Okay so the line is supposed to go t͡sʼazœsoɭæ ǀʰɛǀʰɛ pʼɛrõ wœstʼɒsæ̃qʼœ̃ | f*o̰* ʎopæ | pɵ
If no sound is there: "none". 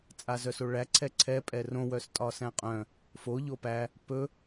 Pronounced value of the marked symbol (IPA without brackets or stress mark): o